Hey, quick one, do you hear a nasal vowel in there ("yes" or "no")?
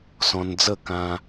yes